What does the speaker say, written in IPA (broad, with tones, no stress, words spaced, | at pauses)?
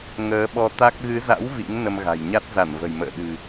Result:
ŋəː˨˦ɓɔ˧t̪a˦˥k̚ ɣɨ˨˦za̰˧˥w vḭ˧˥ŋ nə˧mɣa̤˨˩jɲa˦˥t̚ za˧˩nvə̤˨˩jmə̰ː˧˨ ɗɨ̤˨˩